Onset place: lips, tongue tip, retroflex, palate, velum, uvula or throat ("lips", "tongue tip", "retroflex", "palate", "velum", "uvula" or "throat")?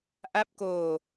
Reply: throat